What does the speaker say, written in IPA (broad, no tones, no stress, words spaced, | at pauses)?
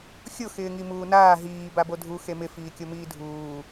xʲʊ xɪːŋimuːnaː ɦiː babodʱu xemɪ fiːkʲomiːdʱuː